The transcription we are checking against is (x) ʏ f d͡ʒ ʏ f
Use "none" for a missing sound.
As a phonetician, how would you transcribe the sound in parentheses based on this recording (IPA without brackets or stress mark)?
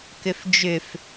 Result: k